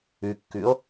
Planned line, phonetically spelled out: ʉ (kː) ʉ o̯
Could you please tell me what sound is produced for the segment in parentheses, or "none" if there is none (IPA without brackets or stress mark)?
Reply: kː